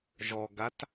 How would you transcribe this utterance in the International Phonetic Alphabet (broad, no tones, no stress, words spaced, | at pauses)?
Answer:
ʒɔɡat